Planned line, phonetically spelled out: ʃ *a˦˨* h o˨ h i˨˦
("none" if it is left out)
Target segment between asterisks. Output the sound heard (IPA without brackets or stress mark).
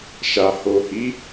a˨